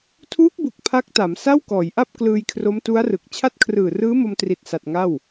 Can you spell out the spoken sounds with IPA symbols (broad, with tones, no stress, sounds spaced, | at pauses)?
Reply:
tʰ uː˦˥ k̚ b u˨˩ k̚ pʰ a˦˥ k̚ t a˩˦ m s a˥˩ w k ɔː˩˦ j ʔ a˥˩ p̚ k l ɯː˧ j kʰ r o˦˥ m t u˦˥ a̯ r ɯ˨˩ k̚ t͡ɕʰ a˦˥ t̚ kʰ r ɯː˨˩ r ɯː˦˥ m o˧ m t r i˨˩ t̚ s a˨˩ t̚ ŋ a˥˩ w